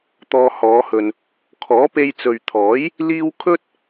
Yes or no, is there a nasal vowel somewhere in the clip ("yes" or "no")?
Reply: no